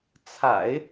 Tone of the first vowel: low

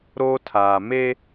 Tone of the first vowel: high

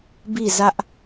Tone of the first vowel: falling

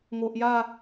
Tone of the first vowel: low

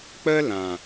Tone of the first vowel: high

